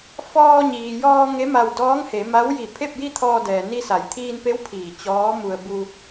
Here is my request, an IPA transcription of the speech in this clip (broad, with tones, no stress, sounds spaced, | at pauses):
f ɔː˧ ɲ iː˩ j ɔː˧ ŋ e˧˥ m a˧ w d ɔː˧˥ ŋ h e˩˧ m a˧˥ w j i˧˩ pʰ e˥˨ p̚ j i˥˨ t̪ʰ ɔː˧ d ɛː˩ n i˧ s a˩˧ j t̪ʰ iː˧ n p e˧˥ w pʰ iː˧˩ t͡ɕ ɔː˧˥ m u˧ ə̯ b u˧